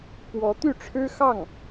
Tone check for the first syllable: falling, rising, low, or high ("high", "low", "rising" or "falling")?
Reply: rising